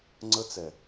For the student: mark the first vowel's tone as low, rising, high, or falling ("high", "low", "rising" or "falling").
high